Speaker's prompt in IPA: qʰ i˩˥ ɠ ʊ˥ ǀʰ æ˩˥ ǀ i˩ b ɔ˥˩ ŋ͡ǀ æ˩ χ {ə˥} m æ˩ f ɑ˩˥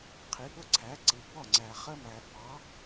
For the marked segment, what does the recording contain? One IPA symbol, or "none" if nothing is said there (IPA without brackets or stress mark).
ə˥